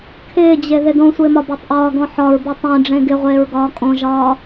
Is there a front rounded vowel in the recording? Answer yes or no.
no